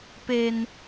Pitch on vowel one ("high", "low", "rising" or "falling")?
high